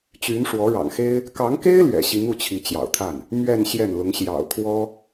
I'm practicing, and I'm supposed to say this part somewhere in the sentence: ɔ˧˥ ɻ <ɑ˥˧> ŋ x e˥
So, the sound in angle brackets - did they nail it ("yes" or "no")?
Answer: no